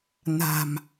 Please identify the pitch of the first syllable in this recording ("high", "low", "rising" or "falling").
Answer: low